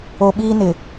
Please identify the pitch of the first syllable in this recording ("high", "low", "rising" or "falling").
low